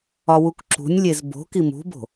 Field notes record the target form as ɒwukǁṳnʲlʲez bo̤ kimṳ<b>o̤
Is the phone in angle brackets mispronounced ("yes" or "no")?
no